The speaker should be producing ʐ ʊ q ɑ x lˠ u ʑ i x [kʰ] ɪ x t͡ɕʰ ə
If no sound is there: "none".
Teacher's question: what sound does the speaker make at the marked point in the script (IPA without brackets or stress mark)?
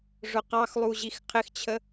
qʰ